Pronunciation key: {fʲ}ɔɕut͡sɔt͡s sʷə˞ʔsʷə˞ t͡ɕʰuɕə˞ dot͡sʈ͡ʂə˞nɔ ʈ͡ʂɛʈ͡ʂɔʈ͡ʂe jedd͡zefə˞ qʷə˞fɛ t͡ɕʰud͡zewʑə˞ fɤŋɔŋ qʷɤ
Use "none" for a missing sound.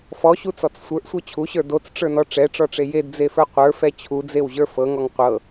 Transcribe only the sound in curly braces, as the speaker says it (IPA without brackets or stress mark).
f